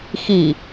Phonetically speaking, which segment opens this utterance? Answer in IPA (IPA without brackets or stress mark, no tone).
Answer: x